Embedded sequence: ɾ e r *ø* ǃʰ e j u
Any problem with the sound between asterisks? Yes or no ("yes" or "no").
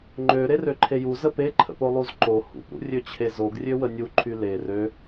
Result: no